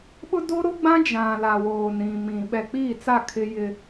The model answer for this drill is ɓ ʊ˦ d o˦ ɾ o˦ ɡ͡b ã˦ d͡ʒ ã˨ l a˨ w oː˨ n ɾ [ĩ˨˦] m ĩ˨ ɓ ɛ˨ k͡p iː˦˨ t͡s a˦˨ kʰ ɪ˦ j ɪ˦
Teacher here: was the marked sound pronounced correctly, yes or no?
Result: no